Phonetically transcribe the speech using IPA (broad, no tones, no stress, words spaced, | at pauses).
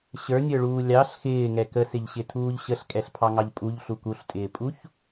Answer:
ɕə˞nʲə˞ɭuː lʲɑɬ xɪːŋɛ kəsɪʎɕɪtʰuːʎ ɕəɬkʼɛɬpʰɑŋɑʎ pʼuʎɬu kuɬtʼɪːpʼuç